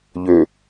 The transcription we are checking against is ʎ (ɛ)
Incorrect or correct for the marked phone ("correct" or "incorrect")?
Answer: incorrect